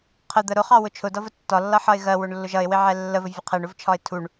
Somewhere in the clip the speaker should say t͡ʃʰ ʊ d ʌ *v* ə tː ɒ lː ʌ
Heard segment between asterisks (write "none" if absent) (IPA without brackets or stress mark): v